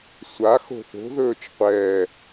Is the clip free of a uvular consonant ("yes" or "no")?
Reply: no